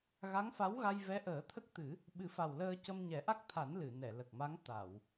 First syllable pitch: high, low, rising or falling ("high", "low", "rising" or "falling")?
rising